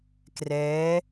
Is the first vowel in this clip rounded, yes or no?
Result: no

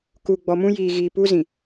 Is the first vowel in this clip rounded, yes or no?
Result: yes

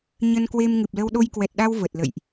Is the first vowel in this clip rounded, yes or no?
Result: no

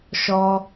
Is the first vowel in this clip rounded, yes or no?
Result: yes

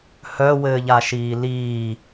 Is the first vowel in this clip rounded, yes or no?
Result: yes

